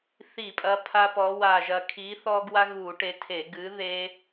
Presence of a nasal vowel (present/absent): absent